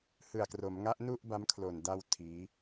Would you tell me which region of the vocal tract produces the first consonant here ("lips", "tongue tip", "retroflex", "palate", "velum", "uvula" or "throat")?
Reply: throat